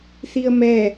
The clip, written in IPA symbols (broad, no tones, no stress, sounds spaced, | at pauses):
θ i ə̯ m ɛ